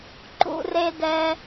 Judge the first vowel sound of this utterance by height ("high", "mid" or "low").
high